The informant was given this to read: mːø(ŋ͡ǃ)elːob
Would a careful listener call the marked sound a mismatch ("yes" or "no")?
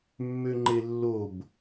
no